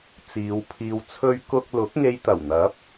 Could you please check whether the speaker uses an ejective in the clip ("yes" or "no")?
no